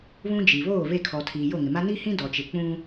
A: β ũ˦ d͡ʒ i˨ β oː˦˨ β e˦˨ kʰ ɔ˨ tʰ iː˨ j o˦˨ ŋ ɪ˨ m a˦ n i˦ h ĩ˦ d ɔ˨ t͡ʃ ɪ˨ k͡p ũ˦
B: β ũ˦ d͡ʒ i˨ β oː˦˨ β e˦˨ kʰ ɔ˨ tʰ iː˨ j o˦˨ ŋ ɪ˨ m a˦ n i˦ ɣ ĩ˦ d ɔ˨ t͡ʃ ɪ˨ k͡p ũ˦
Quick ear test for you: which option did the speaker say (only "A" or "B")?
A